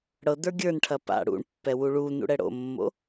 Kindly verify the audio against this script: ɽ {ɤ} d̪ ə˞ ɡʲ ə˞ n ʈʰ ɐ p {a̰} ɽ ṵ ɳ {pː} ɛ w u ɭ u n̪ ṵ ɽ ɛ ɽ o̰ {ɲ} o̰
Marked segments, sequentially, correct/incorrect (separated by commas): correct, correct, correct, incorrect